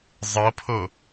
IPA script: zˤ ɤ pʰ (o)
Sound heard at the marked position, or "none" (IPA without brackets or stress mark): o